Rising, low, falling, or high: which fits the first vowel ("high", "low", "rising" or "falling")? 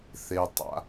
low